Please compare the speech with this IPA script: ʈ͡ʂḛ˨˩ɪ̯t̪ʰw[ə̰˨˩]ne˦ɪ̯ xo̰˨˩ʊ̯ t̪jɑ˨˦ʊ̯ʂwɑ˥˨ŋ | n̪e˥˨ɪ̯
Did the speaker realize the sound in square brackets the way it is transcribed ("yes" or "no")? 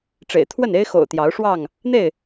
no